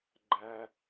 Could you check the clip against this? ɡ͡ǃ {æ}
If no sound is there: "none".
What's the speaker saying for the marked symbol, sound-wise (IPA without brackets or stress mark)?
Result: æ